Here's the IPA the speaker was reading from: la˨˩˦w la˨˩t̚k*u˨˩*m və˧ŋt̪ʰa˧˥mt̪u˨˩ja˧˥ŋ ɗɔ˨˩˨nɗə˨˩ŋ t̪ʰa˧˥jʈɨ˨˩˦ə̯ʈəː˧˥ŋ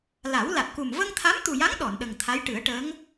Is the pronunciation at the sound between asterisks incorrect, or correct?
correct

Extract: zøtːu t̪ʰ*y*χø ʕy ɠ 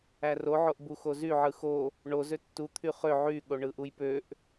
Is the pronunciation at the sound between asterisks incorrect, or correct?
correct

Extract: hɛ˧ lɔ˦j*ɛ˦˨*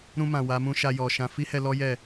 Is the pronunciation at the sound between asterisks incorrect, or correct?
correct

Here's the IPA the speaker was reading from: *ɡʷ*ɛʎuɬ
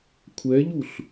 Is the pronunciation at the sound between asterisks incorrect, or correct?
incorrect: kʷʰ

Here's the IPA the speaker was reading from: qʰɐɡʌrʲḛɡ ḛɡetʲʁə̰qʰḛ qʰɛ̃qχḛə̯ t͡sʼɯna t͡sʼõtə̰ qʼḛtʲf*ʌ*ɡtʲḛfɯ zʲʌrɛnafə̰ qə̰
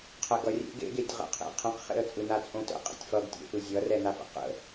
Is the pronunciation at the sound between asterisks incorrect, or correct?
correct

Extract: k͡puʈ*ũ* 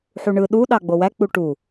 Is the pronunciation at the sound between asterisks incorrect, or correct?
incorrect: u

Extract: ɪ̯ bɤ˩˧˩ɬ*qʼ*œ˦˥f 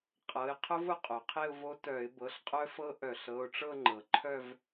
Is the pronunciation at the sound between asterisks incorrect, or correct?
correct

